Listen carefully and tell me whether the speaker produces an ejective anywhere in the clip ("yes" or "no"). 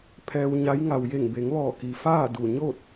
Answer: no